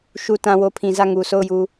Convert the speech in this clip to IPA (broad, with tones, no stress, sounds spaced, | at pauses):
ʃ u˨ t ã˨ w o˨ pʰ ĩ˨ z ä˦˨ ŋ u˨ sʰ o˦˨ ʊ̯ j u˨